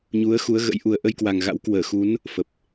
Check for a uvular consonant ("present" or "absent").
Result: absent